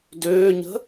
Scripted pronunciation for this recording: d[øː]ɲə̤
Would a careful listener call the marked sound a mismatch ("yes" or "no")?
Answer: no